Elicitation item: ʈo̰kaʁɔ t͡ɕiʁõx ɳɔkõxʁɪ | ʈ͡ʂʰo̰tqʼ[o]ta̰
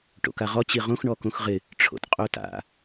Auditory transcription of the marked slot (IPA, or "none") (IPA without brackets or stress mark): o